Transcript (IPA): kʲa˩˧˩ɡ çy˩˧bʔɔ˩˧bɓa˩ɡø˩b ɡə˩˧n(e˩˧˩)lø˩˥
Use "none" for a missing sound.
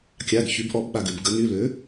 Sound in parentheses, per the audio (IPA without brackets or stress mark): y˩˧˩